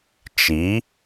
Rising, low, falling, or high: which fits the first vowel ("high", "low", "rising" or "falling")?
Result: rising